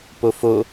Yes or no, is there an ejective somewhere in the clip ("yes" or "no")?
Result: no